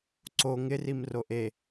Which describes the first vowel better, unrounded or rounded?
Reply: rounded